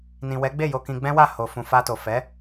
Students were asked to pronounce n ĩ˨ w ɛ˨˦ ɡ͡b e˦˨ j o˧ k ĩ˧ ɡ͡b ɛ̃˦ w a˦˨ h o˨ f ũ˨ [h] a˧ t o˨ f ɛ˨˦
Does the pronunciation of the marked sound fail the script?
yes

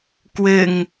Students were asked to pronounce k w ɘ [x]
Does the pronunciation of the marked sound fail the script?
yes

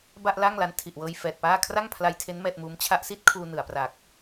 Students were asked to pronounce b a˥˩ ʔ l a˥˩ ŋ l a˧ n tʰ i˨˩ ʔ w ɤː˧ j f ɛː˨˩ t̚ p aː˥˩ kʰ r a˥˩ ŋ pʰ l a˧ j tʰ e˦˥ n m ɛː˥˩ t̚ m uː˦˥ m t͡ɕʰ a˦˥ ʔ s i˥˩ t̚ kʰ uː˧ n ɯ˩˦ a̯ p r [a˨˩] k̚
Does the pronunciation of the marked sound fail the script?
no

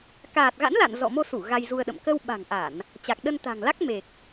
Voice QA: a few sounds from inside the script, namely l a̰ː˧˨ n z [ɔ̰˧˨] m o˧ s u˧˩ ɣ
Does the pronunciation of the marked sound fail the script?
no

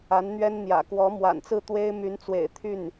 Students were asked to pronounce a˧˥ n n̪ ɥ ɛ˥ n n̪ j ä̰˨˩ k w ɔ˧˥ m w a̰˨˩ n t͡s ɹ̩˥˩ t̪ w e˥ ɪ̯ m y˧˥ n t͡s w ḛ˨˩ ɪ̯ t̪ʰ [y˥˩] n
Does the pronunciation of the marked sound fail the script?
no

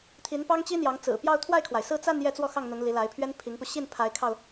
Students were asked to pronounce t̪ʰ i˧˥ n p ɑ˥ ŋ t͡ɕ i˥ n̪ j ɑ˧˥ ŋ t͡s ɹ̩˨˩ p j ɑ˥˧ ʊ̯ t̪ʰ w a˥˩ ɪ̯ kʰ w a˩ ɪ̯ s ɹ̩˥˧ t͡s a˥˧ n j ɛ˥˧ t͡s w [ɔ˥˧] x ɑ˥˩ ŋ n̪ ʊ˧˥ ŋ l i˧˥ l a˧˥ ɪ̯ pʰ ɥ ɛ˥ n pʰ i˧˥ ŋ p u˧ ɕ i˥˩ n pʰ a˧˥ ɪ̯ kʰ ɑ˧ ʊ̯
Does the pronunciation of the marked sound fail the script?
no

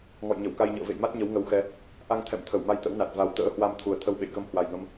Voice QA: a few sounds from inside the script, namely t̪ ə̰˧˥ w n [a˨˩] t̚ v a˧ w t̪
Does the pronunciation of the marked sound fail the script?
no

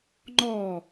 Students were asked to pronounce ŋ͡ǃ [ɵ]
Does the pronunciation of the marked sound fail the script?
yes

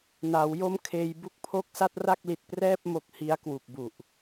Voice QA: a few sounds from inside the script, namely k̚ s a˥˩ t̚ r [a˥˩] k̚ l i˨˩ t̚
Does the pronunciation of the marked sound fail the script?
no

